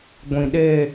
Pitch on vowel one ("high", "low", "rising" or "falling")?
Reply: low